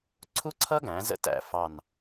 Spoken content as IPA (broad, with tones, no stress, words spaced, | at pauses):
ǀʰu˥ǀʰʌ˥ɡæ̃˩˧ zə̰˥tæ̰˦˨ fɑ˦˨n